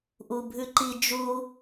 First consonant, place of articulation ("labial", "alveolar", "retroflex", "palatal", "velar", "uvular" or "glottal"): glottal